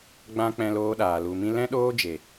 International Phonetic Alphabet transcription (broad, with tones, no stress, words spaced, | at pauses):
ɡ͡bã˧ k͡pɛ̃˧loː˧ɗaː˨ lu˨mĩ˧ lɛ̃˦ɗoː˦d͡ʒe˨